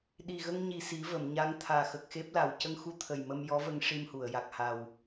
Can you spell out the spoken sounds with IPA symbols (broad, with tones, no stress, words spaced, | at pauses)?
ɗi˨˩ɣə˧ŋɲi˨˩ si˨˩˦və˨˩˨mɲa˧˥ŋ t̪ʰaː˨˩xə˨˩k̚xe˦˥p̚la˨˩w cə˧ŋxu˧t̪ʰə˨˩j mə˧mjɔ˧˥və˧ŋ ʂi˧mhu˨˩˨ə̯ ja˨˩k̚ha˨˩w